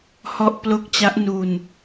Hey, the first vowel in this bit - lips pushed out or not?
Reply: yes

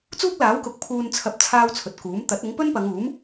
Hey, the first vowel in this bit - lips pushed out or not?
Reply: yes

